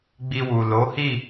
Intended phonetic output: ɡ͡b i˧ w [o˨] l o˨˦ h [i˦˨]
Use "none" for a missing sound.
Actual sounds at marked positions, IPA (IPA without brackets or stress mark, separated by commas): u˨, i˦˨